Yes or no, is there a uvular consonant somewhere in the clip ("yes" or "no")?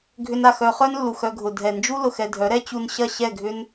yes